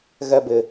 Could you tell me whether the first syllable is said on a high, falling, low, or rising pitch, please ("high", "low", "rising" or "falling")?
high